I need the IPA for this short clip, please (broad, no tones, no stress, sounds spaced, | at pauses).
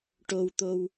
ʈ o w t̪ o w